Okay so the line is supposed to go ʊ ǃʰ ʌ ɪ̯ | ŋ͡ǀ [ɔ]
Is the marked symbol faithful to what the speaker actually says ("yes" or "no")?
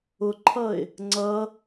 no